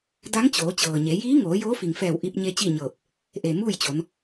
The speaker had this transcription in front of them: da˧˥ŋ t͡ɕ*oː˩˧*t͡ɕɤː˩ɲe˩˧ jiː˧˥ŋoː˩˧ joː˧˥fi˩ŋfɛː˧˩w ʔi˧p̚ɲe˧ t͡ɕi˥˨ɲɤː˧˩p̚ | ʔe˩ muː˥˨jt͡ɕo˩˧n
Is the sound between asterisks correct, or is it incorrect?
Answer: correct